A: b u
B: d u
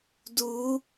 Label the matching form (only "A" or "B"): B